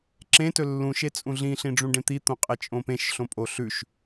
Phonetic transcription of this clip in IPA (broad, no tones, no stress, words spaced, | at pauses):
ǁẽ tɵlːũʃ et͡sʼũɮĩ ɬĩɖ͡ʐũɖẽt̪i t̪õqʼet͡ʃʼõpẽʃ ɬõpʼoɬʉʃ